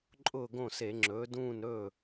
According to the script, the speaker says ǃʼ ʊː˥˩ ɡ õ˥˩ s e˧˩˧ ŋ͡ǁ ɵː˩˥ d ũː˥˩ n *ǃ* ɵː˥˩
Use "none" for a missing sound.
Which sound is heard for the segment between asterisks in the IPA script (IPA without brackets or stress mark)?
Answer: ɾ